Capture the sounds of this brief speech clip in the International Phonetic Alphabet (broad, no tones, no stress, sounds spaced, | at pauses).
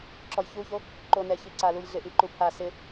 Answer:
ǁ ɔ j ç u ç o | ǃ o n ɛ ç i ǀ a l u j ɮ ɪ ʔ i ǃ u pʰ a s ɪ